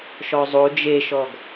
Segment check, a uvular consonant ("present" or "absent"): absent